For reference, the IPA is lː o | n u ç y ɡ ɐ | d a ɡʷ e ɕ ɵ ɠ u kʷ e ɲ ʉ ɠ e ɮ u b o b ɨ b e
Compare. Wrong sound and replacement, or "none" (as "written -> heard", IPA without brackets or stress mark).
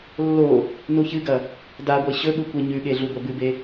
y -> ɨ